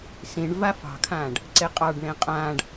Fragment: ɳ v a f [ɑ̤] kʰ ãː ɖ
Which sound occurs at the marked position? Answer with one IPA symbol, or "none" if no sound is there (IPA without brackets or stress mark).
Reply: ɑ̤